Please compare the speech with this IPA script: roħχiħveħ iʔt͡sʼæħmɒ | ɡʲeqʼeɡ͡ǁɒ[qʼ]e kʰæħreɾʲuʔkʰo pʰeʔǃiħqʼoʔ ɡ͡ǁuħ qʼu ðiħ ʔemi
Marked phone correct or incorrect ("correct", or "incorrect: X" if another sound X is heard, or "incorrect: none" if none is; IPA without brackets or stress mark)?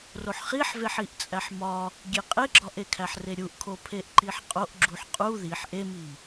incorrect: ʔ